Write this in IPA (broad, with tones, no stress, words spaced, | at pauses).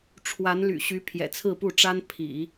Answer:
ʈ͡ʂʰwa˧˥nly̰˨˩ɕy˧˥ pʰjɛ̰˨˩t͡sʰɹ̩˥˧pu˥˩ʈ͡ʂa˥n pʰḭ˨˩˦